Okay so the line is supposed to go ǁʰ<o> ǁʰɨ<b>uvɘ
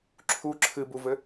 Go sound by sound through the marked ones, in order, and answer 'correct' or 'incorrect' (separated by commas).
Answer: incorrect, correct